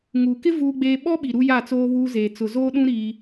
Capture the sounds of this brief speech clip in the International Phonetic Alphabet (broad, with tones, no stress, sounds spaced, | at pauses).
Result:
ŋ uː˨ k ɪ˦ v uː˦ ɡ͡b eː˦ ɓ ɔ˦ ɓ i˨ ɾ u˦ j a˦˨ t͡s oː˦ β uː˦ z eː˨ t͡s ʊ˨ z oː˦ ɗ ũ˦ ɾ i˦